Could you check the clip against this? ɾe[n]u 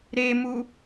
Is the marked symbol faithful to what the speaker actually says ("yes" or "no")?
no